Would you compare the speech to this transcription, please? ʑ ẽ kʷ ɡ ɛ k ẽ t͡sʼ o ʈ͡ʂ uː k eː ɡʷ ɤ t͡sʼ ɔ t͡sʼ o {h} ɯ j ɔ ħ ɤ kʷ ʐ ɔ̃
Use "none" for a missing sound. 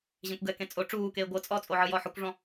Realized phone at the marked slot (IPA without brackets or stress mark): ʕ